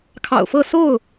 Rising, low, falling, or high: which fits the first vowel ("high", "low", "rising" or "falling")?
low